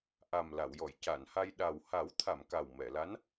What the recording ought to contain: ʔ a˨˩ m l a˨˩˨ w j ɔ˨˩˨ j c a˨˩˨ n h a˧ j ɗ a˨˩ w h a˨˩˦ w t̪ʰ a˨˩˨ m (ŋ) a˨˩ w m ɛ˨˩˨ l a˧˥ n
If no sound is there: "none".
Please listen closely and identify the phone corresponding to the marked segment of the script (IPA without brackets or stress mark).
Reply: k